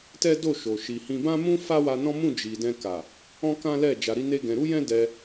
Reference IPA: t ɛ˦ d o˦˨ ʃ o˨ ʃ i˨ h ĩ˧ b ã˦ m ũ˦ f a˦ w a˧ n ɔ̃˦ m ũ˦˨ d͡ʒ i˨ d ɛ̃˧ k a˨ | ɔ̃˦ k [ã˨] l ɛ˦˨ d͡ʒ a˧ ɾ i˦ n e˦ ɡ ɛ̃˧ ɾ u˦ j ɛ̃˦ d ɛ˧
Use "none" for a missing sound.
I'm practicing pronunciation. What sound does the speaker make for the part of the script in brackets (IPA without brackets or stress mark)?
ã˦